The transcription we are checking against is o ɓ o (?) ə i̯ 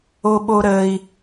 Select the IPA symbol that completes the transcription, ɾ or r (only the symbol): ɾ